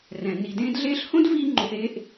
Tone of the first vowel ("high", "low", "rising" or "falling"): low